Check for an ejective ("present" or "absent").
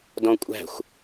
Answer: present